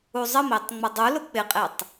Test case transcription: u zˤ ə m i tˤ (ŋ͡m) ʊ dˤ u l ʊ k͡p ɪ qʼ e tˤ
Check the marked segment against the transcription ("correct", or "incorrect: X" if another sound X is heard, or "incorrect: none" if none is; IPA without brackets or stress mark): correct